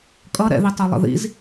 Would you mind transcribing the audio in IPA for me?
kʼ ʌ ɾ ɛ̰ ð i tˤ o lˠ ə̰ ð ḭ z

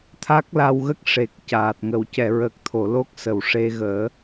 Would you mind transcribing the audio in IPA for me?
t̪ʰ a˦˥ k̚ l a˧ w ɣ ə˦˥ k̚ ʂ e˨˩ k̚ c aː˨˩ t̚ ŋ ə˨˩˨ w c ɛ˨˩˨ ɹ əː˨˩ k̚ t̪ʰ o˨˩˨ l o˦˥ k̚ s ə˨˩˨ w ʂ e˧ ɣ əː˨˩˦

